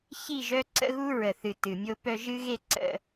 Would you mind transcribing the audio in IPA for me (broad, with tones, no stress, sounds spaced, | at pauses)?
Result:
ç i˦˨ ʒ œ˦ ǀ ə̰˦ ɣ u˦ ɹ ə˨ θ ɨ˨ t ɨ˨ mʲ o˦ p œ˦ ʒ ɨ˦ ɣ e˦ ǀ ə̰˦